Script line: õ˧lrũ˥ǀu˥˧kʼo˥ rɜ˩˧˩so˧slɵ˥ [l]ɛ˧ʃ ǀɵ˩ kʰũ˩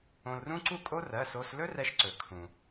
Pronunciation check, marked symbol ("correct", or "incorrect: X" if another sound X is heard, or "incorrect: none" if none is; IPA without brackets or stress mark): incorrect: r